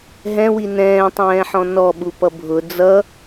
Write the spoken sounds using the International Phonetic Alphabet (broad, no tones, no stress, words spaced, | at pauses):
ɦɛ̃wi nɛ̃ːtˤɛ̃ːħɔ̃ nɔɓupʌ bʱʊ d͡zʌ